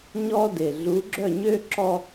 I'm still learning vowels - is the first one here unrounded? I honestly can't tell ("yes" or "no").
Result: no